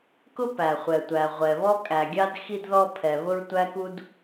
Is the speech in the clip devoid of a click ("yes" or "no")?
yes